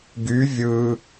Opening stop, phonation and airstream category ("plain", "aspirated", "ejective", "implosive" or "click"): plain